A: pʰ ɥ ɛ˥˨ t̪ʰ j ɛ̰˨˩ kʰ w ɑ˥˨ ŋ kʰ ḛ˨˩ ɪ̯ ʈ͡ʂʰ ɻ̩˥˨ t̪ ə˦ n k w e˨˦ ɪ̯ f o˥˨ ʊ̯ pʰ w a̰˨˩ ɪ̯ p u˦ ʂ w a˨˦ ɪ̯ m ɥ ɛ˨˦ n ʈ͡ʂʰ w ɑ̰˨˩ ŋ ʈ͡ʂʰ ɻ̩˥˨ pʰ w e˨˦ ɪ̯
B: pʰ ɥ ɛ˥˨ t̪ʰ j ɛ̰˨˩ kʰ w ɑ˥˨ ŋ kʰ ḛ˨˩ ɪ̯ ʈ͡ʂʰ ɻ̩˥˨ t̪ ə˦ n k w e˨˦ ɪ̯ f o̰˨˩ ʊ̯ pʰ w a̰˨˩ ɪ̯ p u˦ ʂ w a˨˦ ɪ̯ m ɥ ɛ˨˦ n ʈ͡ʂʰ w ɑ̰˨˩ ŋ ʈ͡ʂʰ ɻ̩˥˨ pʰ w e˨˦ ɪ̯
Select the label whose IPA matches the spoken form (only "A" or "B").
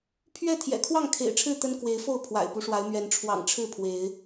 A